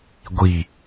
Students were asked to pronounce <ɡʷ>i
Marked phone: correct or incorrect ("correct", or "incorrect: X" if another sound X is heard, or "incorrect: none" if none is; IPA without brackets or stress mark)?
correct